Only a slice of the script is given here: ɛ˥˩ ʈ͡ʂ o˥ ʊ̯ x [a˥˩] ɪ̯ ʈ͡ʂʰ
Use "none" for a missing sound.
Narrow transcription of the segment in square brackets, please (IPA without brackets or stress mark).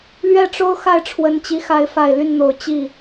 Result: a˥˩